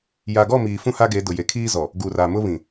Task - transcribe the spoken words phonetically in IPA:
j a˨ ɡ ɔ˦˨ m iː˨ f ũ˦ h a˦ ɡ e˨˦ d ʊ˨ j e˨ kʰ iː˦ z ɔ˨ | ɡ u˨ r a˨ m ʊ˦ β ĩ˨

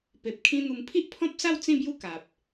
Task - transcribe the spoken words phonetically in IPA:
p e˨ p̚ kʰ ĩ˦ n̪ u˧ m pʰ i˦ ʔ pʰ ɔ̃˦ p̚ s a˥˧ w t͡s ĩ˥˧ b j u˦ k a˨ p̚

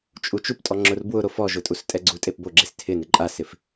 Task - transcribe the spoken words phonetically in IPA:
t͡ʃʼ u t͡ʃ u p tʼ ɔ ŋ͡ǁ ʊ r b w ʊ ɾ o f ɔ ʒ ʊ tʼ u s tʼ ɛ ɡ͡ǀ u tʼ e p b o ɡ͡ǁ e s tʰ ɪ n ɪ ǃʼ a s ɪ f

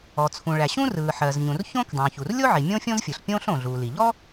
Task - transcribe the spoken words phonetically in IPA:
ɔ˩ t͡sʰ ũ˩ ɭ æ˩ ɕ ũ˥ r ɯː˩ ħ ɜ˩ z ɲ ũ˩ r ç õ˥ k dˤ ũː˩ ç u˩ r lʲ o˥ ʕ i˩ mʲ õ˥ fʲ õ˥ z fʲ ɯ˩ ɬ pʲ õː˥ ɬ õ˩ ɮ u˩ l i˩ ʎ ɔ˥

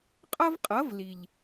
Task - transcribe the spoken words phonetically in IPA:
qʼ ʌ˦ v qʼ ʌ˨˦ v l i˨ ʎ

